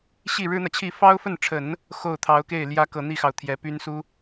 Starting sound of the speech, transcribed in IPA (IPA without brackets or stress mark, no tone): ɕ